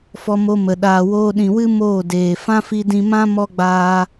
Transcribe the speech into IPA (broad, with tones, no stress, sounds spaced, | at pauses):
f ɔ˧ m o˧ m ə˨ ɗ aː˨ w oː˧ ɗ ĩ˨ w ɨ˦ m oː˦˨ d eː˨ f ã˦ f i˧ d ĩ˧ m ã˦ m ɔ˦ ɡ͡b aː˧